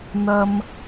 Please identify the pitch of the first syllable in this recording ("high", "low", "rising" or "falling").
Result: low